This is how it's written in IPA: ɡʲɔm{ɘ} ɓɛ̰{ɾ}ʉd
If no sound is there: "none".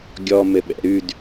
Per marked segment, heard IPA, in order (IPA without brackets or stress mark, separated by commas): ɘ, ɾ